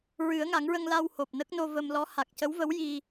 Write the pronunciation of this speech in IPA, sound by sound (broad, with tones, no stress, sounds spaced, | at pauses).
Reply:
ɹ ɨ˨˩˦ ə̯ ŋ a˨˩˦ ŋ ɹ ə˧ ŋ l a˧ w h o˨˩ p̚ n ə˦˥ k̚ n o˧ v ə˧ m l ɔ˧˥ h a˨˩ k̚ c ə˧˥ w v ə˧˥ w j i˧